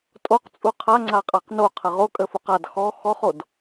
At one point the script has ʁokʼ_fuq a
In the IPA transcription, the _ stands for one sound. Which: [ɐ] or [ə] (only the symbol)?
ə